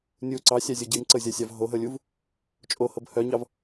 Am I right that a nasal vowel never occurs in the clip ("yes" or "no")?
yes